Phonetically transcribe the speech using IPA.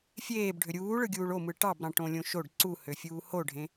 fʲ eː b ɖʱ ø ɾʲ uː ɭ ɯ ɡʲ uː ɭ o m ɯ ʈ ɑ b ɾ ɑ̃ ʈ õ lʲ õ ʃ o ɖ ǀ u h ø fʲ uː h o ɖʱ ẽ

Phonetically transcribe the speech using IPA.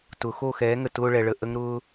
t ʊ˨˦ x o˦˨ x ɛː˨˦ ŋ ə˨ t ʊː˧ ɭ ɛ˨ ɭ ə˨ ʔ ə˦ ŋ ɾ ʊː˦

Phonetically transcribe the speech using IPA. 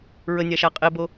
ɹ ə nʲ a ʃ a qʼ e b o

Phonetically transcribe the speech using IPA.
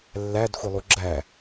lː æ d xʷ i lˠ u ɡ͡ǁ æ

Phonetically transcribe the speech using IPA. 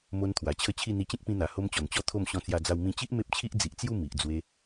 m o˧ n t̪ʰ w a˨˩ t͡ɕʰ ə˦ t͡ɕʰ i˥˧ n̪ i˧ t͡ɕ ẽ˦ k̚ p ĩ˧ n̪ a˨˩ h o˦ m t͡ɕ ɔ˨˩ n t͡ɕ ɔ˥˧ t̪ʰ o˥˧ m ɕ ɔ̃˧ t͡s j a˧ d͡z a˧ w m ĩ˧ t͡ɕ i˦ ʔ m e˦ p̚ t͡ɕʰ i˦ ʔ d͡z i˨ ʔ t͡s j u˥˧ m i˨ ʔ d͡z w e˧

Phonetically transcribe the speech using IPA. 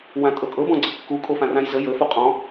w ã tʼ ɤ kʼ ɤ b ɔ̃ ɡ͡ǀ ə kː u kʼ o f ã r ã j z ə j ə f u qʼ ɔ̃

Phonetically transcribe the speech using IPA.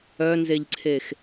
œ n z e ʎ ǀʰ e x

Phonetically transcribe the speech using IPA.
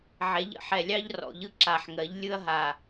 ʕ ɛ˩˧ ʎ ə̰˨˩ ħ ɛ˨˩ lʲ ɑ˦ ʎ r ɔ̰˨˩ ʎ ɯ˦ ǁ a˨˩ ħ ŋ ɜ˩˧ ʎ lʲ ɯ˦ ɐ̯ ɦ a˨˩

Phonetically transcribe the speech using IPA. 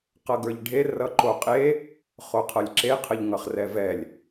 q ʌ ɡ ə˞ ʎ ɖʱ e r ʌ ǃ o qʼ e | χ o qʰ ʌ lʲ ǁ e qʰ ə ʎ ŋ ʌ χ r ɛ v ɛ lʲ

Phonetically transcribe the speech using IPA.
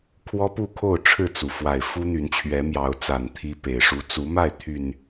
kʰ w ɔ˦ p u˥˨ kʰ o˥˨ ʊ̯ ʈ͡ʂʰ ɻ̩˥˨ t͡s u˩ f w a˨˩ ɪ̯ f u˦ n̪ y˨˦ n t͡ɕʰ ɥ ɛ˨˦ m j ɑ˨˦ ʊ̯ t͡s a˨˩ n t̪ʰ i˦ p e˨˩ ɪ̯ ʂ u˦ t͡s u˨˦ m a˥˨ ɪ̯ t̪ʰ y˨˩ n

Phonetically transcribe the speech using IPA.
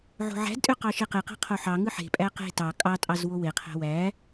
ʕ o̤ ʕ æ̤ d tʼ ø q ɑ ʃ e q e q æ̤ qʰ o ħ ɑ ŋ ɯ ħ e̤ pʼ æ q e̤ t ɑ kʼ ɑ tʼ ɑ z w o w e qʰ æ̤ w æ

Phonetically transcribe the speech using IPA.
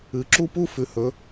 ɨ˩˧ ǁ u˥˧ p u˥ f ʉ˩˧ h ɵ˩˧

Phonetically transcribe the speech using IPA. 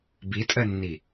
b i tʼ ɜ nː i

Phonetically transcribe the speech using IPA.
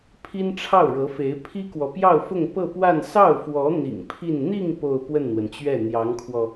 pʰ i˥ n ʈ͡ʂʰ ɑ˥˩ ʊ̯ ɻ ɤ˧˥ f e˧˥ ɪ̯ pʰ i˥ k w ɔ˨ p j ɑ˥˧ ʊ̯ f ʊ˥˧ ŋ p ɤ˥˧ p w a˥˧ n s ɑ˥˩ ʊ̯ f w ɔ˧˥ n̪ ḭ˨˩ ŋ pʰ i˥˧ n n̪ i˥˧ ŋ p o˥˧ ʊ̯ p w ə˥˩ n n̪ w ə˩ n t͡ɕ ɥ ɛ˥˩ n̪ j ɑ˧˥ ŋ kʰ w ɔ˧

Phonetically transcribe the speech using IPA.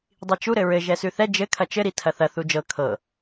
dˤ i t͡ʃ u ɾ ɘ ɹ ɘ ʒ ɛ s ʉ θ ɛ d͡ʒ ɘ kʰ ɐ t͡ʃ ɘ ɾ i tʰ ɐ θ ɐ θ u d͡ʒ ɤ kʰ ɤ

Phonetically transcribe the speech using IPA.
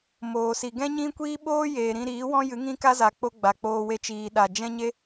m oː˨ s i˨ ɡ ɛ̃˦ ɲ ĩ˦ kʷ iː˦ ɓ oː˦ j eː˨ ɾ ĩ˧ ɾ iː˨˦ w ɔ̃˦ j ɨ˨˦ ŋ ĩ˦ k a˦ z a˨ k͡p o˦ ɡ͡b a˨ k͡p oː˧ w e˧ t͡ʃ iː˨ ɗ a˨ d͡ʒ ɛ̃˦ ɲ e˦

